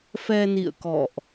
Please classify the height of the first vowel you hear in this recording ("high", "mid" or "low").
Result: mid